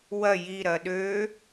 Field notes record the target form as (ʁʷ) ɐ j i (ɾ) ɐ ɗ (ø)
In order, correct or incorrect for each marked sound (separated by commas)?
incorrect, correct, correct